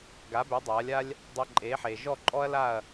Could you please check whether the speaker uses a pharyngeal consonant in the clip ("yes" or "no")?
yes